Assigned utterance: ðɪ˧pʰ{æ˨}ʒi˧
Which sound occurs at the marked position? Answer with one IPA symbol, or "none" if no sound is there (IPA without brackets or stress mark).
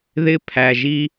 æ˨